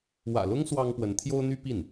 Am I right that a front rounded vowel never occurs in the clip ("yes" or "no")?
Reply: no